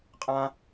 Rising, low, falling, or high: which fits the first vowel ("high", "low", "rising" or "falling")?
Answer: high